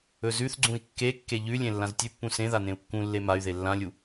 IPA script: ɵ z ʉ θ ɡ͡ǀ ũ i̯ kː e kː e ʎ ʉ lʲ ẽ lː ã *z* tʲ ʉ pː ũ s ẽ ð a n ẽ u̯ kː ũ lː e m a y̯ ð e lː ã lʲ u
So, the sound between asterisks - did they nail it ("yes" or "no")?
yes